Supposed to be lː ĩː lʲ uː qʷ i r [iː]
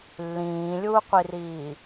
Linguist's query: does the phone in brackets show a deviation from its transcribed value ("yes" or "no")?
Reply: no